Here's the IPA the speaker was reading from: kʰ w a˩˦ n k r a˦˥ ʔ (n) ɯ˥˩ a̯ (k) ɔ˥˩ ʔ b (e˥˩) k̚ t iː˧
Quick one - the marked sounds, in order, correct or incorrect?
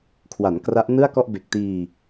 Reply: correct, correct, incorrect: e˨˩

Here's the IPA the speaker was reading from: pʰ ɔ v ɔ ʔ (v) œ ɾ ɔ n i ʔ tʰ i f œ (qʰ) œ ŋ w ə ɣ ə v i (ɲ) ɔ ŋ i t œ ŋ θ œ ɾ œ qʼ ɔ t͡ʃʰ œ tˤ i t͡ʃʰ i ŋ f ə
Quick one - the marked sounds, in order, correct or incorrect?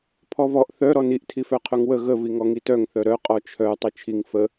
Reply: incorrect: θ, correct, incorrect: ŋ

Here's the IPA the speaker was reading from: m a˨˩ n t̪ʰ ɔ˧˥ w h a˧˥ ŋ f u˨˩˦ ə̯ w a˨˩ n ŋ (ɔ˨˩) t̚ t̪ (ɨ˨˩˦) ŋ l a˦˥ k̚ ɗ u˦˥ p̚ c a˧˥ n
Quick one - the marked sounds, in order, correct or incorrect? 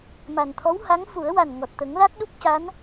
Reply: correct, incorrect: ə˨˩˦

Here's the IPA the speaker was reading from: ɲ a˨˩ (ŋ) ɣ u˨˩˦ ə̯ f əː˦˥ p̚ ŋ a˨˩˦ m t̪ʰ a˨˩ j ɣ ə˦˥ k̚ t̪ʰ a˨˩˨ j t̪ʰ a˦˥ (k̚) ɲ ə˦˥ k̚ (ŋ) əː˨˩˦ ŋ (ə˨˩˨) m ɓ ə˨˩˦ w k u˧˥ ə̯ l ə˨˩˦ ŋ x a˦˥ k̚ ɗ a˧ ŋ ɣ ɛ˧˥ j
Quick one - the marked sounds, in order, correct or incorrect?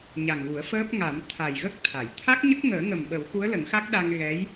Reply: correct, correct, correct, incorrect: ə˨˩

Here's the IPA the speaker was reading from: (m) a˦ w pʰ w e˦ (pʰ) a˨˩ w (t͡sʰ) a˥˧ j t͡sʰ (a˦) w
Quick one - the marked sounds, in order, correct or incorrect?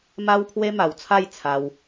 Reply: correct, incorrect: m, correct, incorrect: a˧

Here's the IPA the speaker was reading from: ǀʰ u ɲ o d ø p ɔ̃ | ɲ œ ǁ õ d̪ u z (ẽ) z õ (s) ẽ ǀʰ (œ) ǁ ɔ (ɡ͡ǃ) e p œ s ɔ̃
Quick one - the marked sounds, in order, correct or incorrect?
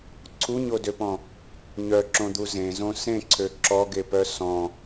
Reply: correct, correct, incorrect: ø, incorrect: ɡ

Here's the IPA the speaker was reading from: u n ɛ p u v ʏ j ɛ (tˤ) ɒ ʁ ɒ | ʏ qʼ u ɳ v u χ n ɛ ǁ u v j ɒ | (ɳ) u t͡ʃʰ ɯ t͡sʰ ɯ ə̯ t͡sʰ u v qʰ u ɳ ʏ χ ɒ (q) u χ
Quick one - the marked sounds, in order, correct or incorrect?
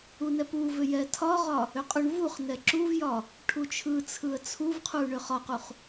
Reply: incorrect: tʰ, incorrect: ʈʰ, correct

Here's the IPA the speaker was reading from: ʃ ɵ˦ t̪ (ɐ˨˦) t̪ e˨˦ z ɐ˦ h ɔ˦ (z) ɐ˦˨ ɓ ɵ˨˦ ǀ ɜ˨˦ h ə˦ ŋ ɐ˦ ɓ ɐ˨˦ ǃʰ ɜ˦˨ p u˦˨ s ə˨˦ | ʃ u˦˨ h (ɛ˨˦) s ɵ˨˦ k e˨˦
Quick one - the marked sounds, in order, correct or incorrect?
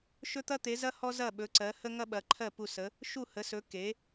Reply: incorrect: ɐ˦, correct, incorrect: ə˨˦

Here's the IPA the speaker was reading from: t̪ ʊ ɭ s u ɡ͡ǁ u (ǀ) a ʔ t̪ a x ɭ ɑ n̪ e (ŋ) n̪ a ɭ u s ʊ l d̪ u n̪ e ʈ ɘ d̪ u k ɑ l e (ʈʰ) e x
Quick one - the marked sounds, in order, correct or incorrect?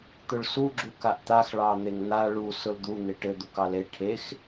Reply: incorrect: k, correct, correct

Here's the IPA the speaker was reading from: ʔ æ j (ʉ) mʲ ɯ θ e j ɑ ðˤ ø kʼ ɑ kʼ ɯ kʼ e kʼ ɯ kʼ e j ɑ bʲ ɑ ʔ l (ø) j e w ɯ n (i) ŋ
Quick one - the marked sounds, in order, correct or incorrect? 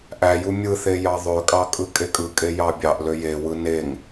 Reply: incorrect: u, correct, incorrect: e

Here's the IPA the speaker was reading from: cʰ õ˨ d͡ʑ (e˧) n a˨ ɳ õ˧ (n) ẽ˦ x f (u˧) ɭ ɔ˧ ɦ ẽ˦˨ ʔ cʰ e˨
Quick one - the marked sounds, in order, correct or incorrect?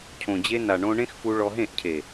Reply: correct, incorrect: ɳ, correct

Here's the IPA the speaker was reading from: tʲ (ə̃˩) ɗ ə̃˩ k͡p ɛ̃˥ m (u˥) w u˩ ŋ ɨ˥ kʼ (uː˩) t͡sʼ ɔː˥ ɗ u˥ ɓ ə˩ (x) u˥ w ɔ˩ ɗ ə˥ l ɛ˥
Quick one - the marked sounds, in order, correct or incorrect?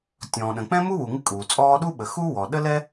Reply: incorrect: ɔ̃˩, correct, correct, correct

